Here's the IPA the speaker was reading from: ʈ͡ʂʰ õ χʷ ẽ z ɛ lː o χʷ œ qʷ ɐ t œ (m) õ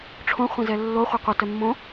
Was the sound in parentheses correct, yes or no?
no